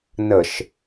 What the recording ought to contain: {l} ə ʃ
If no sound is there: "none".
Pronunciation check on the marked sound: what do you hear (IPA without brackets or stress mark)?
n